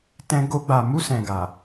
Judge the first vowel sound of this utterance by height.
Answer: mid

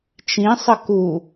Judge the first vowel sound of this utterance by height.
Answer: high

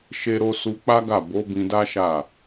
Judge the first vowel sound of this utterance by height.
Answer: mid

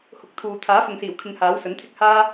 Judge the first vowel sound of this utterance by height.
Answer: high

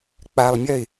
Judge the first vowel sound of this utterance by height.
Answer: low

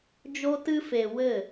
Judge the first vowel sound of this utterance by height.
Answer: mid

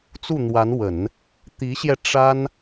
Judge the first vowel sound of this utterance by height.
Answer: high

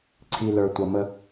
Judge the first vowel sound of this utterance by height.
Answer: high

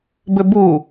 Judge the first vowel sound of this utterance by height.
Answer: mid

